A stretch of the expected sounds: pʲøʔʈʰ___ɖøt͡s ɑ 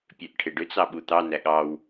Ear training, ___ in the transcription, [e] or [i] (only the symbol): e